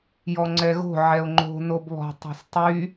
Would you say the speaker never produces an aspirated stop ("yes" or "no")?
yes